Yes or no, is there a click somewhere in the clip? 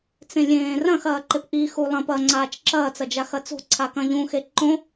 yes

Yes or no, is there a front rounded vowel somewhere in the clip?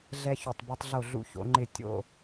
yes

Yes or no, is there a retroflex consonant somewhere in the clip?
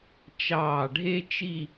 yes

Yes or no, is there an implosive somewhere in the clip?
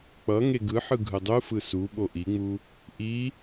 yes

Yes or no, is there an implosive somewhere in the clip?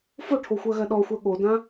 yes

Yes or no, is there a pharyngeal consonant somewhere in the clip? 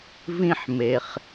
yes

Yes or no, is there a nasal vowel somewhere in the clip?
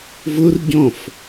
yes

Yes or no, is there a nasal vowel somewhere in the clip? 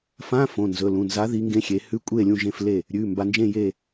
yes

